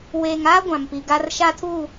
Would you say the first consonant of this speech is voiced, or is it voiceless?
voiced